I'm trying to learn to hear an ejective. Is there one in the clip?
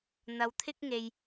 no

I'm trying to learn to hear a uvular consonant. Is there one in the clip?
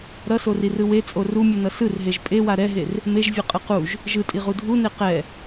yes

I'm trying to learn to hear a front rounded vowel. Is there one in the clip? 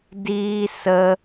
no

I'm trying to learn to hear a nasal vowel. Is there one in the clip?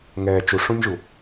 yes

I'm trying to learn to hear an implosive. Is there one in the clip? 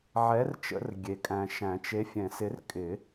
no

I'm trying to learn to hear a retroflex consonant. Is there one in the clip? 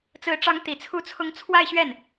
yes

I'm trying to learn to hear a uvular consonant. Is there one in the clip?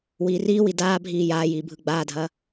no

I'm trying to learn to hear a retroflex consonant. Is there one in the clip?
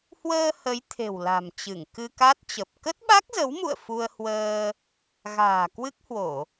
no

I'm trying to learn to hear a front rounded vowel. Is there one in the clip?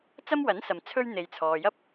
no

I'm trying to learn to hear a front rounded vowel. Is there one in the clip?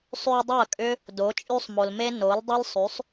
yes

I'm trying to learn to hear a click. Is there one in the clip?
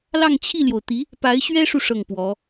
no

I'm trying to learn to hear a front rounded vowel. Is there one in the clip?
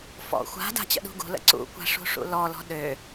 yes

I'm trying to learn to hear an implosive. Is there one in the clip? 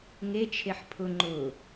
no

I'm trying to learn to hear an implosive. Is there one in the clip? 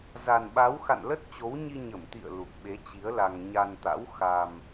yes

